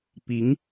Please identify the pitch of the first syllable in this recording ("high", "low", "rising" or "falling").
rising